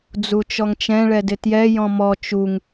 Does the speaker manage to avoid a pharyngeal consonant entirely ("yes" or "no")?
yes